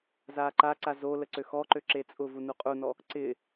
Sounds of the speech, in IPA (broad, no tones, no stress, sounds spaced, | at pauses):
z aː ǃ a ǀ a z o l ə ǀ ø x ɔ ǃ ø ǁ e t͡sʼ ʊ v u n u qʼ u n ɔ | ǀ ɪ